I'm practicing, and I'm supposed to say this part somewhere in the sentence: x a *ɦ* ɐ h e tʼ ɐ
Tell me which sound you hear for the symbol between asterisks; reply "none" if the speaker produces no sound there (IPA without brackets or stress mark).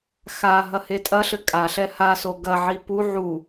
ɦ